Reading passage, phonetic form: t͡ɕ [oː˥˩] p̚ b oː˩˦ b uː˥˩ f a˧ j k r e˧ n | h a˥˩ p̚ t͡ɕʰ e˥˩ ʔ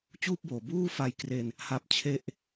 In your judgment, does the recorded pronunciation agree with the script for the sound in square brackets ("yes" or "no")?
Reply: no